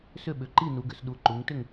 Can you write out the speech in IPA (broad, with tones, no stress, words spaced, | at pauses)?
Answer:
sʏ˥˩ɓʏ˩˧ ǃi˥˩ nu˩˧ɡʏ˩˧sɗu˩˧ ǃu˩˧ŋ tʏ˥˩ŋ